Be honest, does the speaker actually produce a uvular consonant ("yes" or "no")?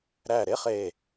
yes